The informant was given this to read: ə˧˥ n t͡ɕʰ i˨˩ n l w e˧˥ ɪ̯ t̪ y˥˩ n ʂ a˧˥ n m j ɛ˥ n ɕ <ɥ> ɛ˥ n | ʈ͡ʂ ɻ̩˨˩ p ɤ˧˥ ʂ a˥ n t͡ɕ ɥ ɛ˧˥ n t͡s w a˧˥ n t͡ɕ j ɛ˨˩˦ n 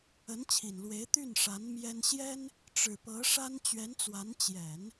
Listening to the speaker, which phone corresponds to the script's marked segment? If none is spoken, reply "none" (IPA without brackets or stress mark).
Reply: j